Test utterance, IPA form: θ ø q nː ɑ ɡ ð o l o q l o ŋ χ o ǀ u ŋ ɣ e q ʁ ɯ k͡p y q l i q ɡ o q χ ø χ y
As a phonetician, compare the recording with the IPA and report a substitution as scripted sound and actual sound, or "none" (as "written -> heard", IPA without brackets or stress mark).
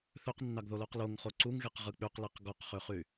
none